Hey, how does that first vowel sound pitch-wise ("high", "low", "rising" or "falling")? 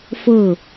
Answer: falling